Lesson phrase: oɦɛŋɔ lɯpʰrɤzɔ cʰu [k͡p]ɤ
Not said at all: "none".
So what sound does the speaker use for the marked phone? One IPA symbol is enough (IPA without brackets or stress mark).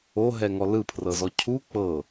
k͡p